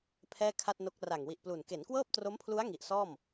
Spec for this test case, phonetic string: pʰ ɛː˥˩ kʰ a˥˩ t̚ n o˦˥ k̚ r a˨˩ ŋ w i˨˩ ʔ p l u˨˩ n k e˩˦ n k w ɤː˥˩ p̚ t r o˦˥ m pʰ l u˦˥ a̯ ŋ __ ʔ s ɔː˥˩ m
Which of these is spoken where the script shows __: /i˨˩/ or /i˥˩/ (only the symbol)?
i˨˩